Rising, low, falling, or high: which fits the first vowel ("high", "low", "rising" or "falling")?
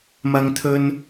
high